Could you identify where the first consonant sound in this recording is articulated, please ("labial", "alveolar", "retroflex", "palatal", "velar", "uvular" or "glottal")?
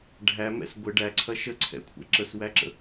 retroflex